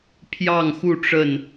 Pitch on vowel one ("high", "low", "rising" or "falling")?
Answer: falling